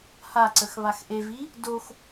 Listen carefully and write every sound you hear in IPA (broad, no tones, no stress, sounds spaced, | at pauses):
h a ǀ ə x β a x ʔ e v i | d o x